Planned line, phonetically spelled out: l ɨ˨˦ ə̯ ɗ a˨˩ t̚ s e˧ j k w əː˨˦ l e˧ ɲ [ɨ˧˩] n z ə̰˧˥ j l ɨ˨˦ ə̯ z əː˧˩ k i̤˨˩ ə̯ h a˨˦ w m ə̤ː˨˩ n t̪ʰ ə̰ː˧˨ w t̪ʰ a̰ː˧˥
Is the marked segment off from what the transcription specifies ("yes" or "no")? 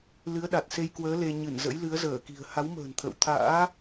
no